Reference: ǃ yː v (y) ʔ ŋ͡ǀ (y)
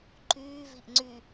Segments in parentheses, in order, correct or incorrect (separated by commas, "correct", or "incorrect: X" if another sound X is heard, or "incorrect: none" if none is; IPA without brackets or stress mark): incorrect: i, correct